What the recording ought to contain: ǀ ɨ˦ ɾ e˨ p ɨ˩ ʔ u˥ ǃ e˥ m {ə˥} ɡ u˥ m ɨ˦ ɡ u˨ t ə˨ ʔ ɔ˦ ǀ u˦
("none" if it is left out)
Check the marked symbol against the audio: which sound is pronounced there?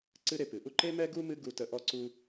ɛ˥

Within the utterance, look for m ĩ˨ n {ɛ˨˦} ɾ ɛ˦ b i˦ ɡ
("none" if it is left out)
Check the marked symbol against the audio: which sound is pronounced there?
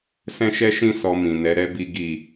ɛ˨˦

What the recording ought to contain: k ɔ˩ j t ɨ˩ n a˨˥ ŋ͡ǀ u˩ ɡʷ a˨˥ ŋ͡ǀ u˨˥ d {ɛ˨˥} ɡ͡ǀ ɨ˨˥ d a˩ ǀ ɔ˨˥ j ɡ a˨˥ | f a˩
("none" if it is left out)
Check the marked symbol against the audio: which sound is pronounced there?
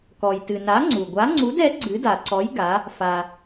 ɛ˨˥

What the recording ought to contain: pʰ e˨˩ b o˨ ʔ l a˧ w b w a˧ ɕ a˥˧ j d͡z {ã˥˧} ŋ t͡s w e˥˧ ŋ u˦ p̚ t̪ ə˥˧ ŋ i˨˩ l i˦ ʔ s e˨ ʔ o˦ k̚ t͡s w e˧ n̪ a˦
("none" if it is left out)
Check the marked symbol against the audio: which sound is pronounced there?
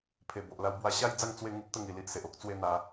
a˥˧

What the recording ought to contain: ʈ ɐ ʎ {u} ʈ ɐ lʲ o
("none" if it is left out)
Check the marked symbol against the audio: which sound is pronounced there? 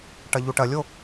u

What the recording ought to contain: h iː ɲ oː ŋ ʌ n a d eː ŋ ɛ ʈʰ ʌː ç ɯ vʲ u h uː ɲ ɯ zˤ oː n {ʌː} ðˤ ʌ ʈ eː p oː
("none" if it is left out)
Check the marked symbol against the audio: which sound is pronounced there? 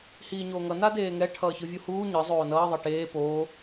ʌː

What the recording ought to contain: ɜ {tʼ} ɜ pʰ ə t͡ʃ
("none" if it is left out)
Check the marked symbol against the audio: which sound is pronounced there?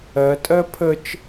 tʼ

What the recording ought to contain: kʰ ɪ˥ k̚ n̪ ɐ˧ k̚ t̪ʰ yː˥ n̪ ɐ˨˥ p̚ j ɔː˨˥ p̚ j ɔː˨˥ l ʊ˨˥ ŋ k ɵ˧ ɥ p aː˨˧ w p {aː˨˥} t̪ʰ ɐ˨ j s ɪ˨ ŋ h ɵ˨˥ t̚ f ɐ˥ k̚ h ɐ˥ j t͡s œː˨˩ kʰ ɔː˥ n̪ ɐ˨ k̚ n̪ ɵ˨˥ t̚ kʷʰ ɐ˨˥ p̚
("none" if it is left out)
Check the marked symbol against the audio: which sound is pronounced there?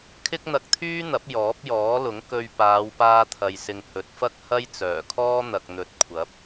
aː˧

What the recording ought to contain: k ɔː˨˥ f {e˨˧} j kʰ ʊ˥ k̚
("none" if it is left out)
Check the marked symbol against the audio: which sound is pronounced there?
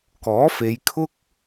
e˨˧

